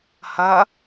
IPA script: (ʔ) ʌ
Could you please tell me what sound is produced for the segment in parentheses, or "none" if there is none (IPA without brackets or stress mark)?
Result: h